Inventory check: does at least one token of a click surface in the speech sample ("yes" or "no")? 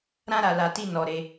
no